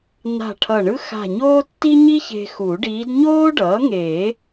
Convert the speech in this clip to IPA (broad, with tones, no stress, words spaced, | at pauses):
na̤˧˩ ʈʰʌ˧˩ɳɯ˥ xa̤˧˩ɲoː˥tːi˥ ɲi˥çe̤˧ xu˨˩˦ɖiː˧˥d ɲoː˥ɖʌː˩˥ŋeː˨˩˦